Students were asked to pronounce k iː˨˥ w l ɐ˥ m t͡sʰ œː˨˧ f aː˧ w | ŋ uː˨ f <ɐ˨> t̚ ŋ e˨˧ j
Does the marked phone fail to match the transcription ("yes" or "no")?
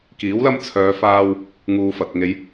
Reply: no